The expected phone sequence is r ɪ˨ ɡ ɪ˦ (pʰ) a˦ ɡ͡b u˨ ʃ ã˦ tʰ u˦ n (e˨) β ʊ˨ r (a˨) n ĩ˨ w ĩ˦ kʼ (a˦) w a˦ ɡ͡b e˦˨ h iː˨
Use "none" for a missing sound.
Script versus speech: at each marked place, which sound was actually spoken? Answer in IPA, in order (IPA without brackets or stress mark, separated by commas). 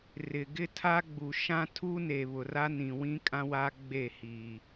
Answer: tʰ, e˨, a˦, ã˦